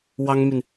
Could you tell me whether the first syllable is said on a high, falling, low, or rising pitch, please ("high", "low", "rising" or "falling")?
high